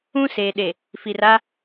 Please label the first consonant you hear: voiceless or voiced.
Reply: voiceless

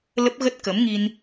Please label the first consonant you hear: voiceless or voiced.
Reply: voiced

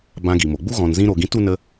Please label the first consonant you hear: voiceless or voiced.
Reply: voiced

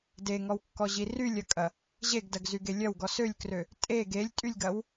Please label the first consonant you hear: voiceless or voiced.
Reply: voiced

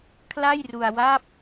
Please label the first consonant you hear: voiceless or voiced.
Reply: voiceless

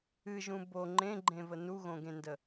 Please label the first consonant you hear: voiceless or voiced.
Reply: voiced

